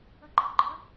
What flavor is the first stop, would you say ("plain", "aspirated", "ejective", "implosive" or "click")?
click